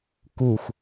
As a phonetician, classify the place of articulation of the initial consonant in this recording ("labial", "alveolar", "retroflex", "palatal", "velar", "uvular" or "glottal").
velar